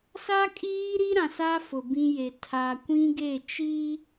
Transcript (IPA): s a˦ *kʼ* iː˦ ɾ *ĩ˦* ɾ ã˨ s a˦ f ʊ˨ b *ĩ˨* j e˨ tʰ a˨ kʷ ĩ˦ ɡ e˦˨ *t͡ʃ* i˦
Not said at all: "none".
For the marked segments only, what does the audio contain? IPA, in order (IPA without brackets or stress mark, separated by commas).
kʼ, i˦, ĩ˦, t͡ʃ